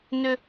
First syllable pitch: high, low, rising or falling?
low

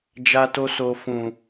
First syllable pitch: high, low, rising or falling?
high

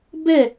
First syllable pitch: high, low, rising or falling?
falling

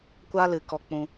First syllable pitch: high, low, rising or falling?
high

